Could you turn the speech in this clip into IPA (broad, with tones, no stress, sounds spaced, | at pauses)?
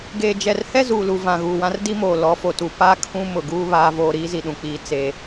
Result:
ɡ eː˨ d͡ʒ ɛ˨ r h ɛ˦ z uː˨ l u˨ v ã˨ ɣ uː˨ w ã˦ r d i˦ m oː˨ l ɔ˨˦ f o˨ t u˨ p aː˦ kʰ ũ˦ m ʊ˨ ɡ uː˦ β aː˦ v oː˦ ɾ iː˦ z i˨ ɗ ũ˨ k͡p iː˨ t͡s eː˦